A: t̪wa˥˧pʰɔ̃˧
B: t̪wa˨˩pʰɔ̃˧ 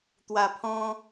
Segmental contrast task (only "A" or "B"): B